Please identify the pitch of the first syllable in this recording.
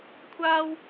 high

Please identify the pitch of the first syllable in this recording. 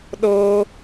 high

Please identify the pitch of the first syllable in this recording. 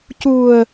low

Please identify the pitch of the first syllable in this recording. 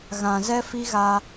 low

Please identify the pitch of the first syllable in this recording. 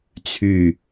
low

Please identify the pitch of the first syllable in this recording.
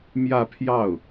falling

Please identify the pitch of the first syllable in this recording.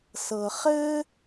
low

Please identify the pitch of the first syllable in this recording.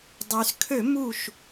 low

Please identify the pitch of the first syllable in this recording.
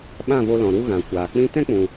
falling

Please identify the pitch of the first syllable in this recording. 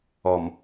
low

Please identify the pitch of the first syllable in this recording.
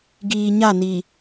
low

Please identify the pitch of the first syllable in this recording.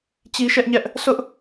high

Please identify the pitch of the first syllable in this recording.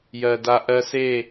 low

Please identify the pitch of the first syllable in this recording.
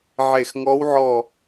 falling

